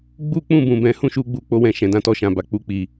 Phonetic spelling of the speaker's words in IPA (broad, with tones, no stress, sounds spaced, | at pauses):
ɡ͡b u˦ k͡p ũ˦˨ b ũ˨ b ɛ̃˨˦ h ũ˦ ʃ u˧ ɡ͡b u˧ k͡p o˧ w ɛ̃˨ ʃ ɛ̃˨ d ã˨˦ t ɔ˧ ʃ ã˨ b a˨ k͡p u˧ k͡p i˨